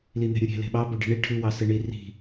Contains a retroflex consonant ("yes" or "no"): yes